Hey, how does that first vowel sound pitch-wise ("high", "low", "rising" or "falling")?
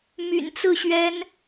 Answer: low